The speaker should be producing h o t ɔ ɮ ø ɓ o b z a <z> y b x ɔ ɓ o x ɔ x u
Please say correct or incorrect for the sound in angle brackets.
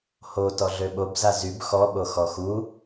correct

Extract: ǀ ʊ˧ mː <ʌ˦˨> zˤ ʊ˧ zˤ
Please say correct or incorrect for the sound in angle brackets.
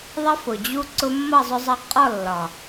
correct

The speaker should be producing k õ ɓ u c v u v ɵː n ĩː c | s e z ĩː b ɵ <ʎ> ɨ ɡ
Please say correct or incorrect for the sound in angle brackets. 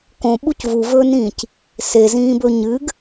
incorrect: ɲ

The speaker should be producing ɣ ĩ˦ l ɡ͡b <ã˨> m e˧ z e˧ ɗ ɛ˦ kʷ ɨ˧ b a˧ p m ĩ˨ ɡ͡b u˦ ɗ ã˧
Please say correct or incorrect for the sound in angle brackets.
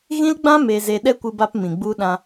incorrect: ã˦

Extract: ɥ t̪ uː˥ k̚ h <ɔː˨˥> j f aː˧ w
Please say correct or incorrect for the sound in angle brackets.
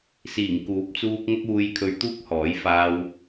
correct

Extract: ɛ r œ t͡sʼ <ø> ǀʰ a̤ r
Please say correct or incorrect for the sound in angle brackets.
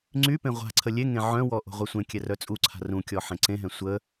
incorrect: u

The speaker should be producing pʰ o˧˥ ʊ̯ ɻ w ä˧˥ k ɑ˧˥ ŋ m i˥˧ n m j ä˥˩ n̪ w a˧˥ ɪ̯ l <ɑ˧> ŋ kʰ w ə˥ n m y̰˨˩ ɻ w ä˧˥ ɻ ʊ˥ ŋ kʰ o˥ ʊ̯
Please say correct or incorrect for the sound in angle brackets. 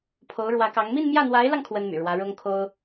correct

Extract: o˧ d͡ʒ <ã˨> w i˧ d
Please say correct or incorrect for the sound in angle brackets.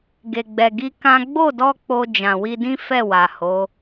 correct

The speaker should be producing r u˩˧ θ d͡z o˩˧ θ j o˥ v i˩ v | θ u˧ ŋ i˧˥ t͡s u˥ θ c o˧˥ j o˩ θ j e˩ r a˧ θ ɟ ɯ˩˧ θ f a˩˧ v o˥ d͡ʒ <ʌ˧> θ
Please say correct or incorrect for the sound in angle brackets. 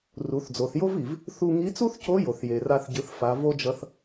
correct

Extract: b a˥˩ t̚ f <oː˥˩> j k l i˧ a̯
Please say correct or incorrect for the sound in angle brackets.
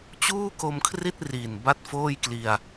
correct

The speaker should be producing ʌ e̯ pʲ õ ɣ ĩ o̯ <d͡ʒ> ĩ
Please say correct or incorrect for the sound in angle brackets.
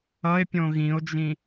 correct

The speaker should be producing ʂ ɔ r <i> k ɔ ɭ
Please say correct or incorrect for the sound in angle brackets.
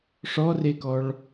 incorrect: e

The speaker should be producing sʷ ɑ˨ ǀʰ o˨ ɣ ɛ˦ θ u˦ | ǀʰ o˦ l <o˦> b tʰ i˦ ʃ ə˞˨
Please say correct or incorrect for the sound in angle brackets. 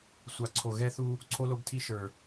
correct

